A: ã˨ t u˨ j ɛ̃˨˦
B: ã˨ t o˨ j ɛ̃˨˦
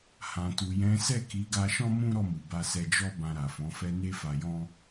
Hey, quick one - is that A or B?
A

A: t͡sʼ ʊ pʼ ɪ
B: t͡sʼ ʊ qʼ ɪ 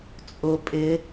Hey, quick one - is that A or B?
A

